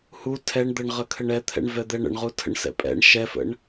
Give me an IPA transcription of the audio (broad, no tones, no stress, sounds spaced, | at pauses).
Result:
h u tʰ ɛ ɳ d̪ ə ɳ ʁ ə kʰ ə ɳ ɛ t̪ʰ ɛ̰ ɳ v ɛ d̪ ɛ ɳ ə̰ ɳ ʁ u tʰ ə̰ ɳ s ɛ̰ pʼ ɛ̰ ɳ ʃ ɛ f ə̰ ɳ